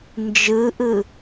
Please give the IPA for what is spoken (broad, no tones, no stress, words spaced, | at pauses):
nd͡ʒɯʔɯ